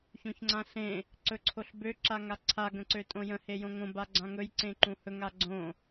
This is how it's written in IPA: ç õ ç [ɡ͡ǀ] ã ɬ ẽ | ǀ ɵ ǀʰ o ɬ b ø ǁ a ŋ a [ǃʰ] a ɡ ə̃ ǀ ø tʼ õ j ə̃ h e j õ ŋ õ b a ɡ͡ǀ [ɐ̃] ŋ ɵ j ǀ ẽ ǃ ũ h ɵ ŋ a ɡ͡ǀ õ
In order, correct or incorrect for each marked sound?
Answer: incorrect: ŋ͡ǀ, incorrect: ǀʰ, incorrect: ã

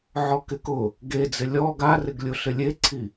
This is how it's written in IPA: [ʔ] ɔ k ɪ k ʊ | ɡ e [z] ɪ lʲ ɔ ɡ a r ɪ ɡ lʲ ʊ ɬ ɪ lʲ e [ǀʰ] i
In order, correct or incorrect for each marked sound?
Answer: incorrect: ʕ, incorrect: d͡z, correct

